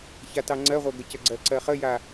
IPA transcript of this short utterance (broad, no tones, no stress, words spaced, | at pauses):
çatɑŋ͡ǀɜʁʷɜ ɡəcəɡ͡ǀɜ ǀɜχəja